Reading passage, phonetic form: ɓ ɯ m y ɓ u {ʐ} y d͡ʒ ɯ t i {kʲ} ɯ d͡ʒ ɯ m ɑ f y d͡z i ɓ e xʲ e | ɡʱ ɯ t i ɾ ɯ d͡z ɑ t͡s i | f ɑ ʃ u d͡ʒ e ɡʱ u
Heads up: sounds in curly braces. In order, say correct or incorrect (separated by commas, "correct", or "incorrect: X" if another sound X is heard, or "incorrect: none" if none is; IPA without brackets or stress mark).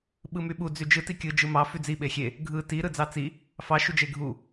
incorrect: d͡z, correct